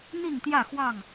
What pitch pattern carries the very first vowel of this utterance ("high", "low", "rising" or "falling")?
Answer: falling